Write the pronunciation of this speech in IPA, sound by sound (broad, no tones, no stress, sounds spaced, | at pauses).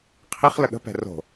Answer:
qʰ i χ l ə ɠ ə̤ p ɛ̤ r o̤